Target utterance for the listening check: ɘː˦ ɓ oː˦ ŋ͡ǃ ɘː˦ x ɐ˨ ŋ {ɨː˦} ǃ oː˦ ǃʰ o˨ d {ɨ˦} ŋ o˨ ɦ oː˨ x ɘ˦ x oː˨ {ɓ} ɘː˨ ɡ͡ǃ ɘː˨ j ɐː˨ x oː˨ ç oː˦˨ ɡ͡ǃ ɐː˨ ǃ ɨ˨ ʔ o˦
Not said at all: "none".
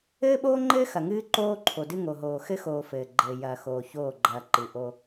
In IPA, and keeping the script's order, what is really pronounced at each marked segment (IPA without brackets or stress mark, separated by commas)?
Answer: ɨː˦, ɨ˦, f